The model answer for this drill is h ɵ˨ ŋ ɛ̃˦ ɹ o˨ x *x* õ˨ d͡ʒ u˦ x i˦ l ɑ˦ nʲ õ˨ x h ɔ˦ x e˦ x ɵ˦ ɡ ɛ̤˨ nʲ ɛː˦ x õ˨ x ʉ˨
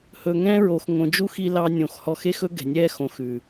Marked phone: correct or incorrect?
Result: incorrect